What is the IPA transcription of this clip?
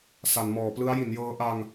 s a˩˦ n m ɔː˩˦ p l ɯ˦˥ a̯ j i˩˦ n j ɤː˦˥ ʔ a˧ ŋ

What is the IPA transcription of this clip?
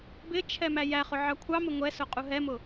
b ɪ t͡ʃʰ ɛ m æ j æ χ ʊ ʕ ɑ kʷʰ ɑ m ɪ ŋʷ ɛ s ʊ qʼ u ɦ ɛ m ʊ

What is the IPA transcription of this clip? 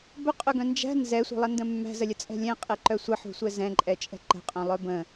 b ɵ qʼ œ ɡ œ̃ n d͡ʒ æ̤ n z ɛ sʷ ə̤ lˠ ə n d ə̃ mː æ̤ z ə lʲ ə t͡sʼ ɛ̤ lʲ ɛ̃ qʼ ɛ ǃ œ sʷ ə ħ ṳ sʷ ɛ z ɛ̃ ǃʼ ɛ t͡ʃʼ ɛ̤ ǃ ə̤ qʼ œ̃ lˠ œ b ə̃

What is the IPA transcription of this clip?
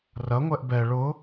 r ɐ ŋʷ ɛ ʔ b ɛ ɭ ʊ

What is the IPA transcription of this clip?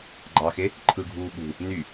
ɡ͡ǃ ɑ x e | ǃʰ ɯ ɡʱ uː ɠ ṳ | n y

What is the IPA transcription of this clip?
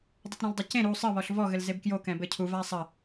dˤ ɘ t ɾ ɛ̃ l dˤ ɘ c ẽ ɾ u sˤ ɘ β ɔ ɬ v ɔ ɣ ɘ l z e b k j o k ɛ̃ b ɘ cʰ u v a sˤ ɐ

